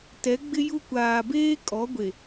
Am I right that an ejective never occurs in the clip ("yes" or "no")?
no